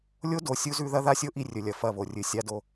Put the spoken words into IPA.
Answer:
lʲ o˦ d o˨ sʲ u˦ z ʉ˦ ð ɐ˦ ð a˦ sʲ o˦ ʔ i˦ rʲ ɵ˨ lʲ ɐ˨ f ɐ˦˨ β o˨ rʲ ɨ˨ sʲ a˦ d o˦

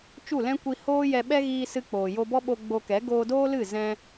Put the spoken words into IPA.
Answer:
t͡ʃ u˦˨ l ɛ̃˦ kʷ i˧ h oː˦ j ɛ˧ ɓ ɛ˦ ɣ iː˧ s ɨ˧ k͡p oː˨ j o˧ b ɔ˦ ɓ o˧ ɡ͡b o˧ k ɛ˨˦ ɡ oː˧ d oː˦ l ɨ˦˨ z ɛ̃˦

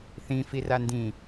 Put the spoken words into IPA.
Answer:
θ ĩ f i r a n d ĩ

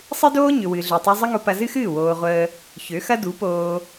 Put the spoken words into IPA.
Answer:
sˤ ɨ˦ d oː˦ ɲ ʏ˨ w ɨ˨ ɮ ø˨ tˤ u˧ zˤ ə˦ ŋ o˧ p ɐ˧ z ɨ˦ x ɨː˦˨ w oː˧ ʁʷ əː˦ | ç ø˨˦ x ɐ˦ d u˨˦ p oː˧

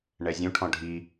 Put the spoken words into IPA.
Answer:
ɳ ɛ zʲ ũ ʈʰ ɔ̃ ɖʱ i

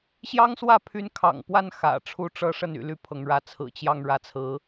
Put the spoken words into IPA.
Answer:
ɕ j ɑ˥ ŋ s w ä˥˩ pʰ y˧˥ n kʰ ɑ̰˨˩ ŋ p w a˥˩ n x ä̰˨˩ ʈ͡ʂʰ u˥˧ ʈ͡ʂ ɤ˥˧ ʂ ə˥˩ n y̰˨˩ l y˥˩ pʰ ɤ˧˥ ŋ ɻ ä˧˥ t͡sʰ ɹ̩˨˩ t͡ɕ j ɑ˥˧ ŋ ɻ ä˥˩ t͡sʰ ɹ̩˧˥

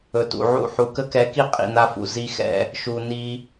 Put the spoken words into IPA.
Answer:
ɵ˨ t ṵ˨ ʕ ṵ˦˨ ħ u˨ k ə˦ k ɛ˨˦ k i˦ qʼ ḭ˨ n a˦ f ṵ˨ z i˦ x ɛ̰˦˨ | ʃ u˨ n i˦

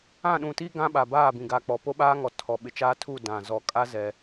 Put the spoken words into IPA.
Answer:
ã˦˨ ɗ ũ˨ t i˦ ɡ ã˦ ɓ a˨ b aː˦˨ b ĩ˨ ɡ a˨ k͡p ɔ˨ p o˦ ɓ aː˦ ŋ ɔ˨ tʰ ɔ˨ ɓ ɪ˨ t͡ʃ aː˦ tʰ u˦˨ d ã˨ z ɔ˨ kʼ a˦ z ɛ˦

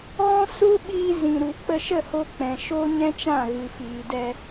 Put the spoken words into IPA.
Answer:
ɣ ɔ̃˦ s u˦ ɓ iː˧ z ĩ˨ ɾ u˨ k͡p ə˧ ʃ ə˦˨ h o˧ k͡p ɛ̃˨ ʃ oː˦ ɲ ɛ̃˦ t͡ʃ ã˦˨ ɣ ɨ˨ f iː˨ d ɛ˧

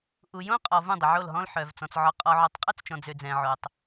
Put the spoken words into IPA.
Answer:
ʔ u˨ j õ˦ qʼ ɔ˨ v ũ˦˨ dˤ ə˨ ʕ o˦˨ l ɦ ɔ̃˦ l ħ œ˨ v t͡s ɔ̃˨ t͡s ʕ ɔ˨ qʼ ɔ˨ ʕ o˨ tˤ qʼ ø˦ t͡s t͡ʃ ɔ̃˨ d͡z ø˨ d͡z ɛ̃˨ ʕ o˨ tˤ

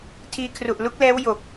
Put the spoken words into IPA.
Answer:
tʰ iː˧ kʰ r u˨˩ ʔ l u˦˥ k̚ l ɛː˦˥ w j o˨˩ k̚

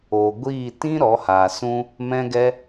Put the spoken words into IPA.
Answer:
oː˨ ɡʷ iː˦˨ t ĩ˦ ɾ ɔ˨˦ h aː˨ s ũ˦ | m ɛ̃˦ ɡ ɛ˦

